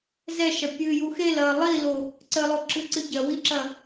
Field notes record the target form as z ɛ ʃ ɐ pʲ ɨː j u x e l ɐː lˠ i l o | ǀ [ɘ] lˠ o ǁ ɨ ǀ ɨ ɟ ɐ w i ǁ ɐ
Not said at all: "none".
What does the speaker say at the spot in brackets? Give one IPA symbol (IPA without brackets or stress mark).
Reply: ɘ